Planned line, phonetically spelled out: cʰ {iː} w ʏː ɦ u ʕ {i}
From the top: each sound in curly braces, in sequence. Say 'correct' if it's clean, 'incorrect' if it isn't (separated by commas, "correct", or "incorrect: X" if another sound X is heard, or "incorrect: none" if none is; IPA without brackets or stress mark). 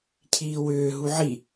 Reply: correct, correct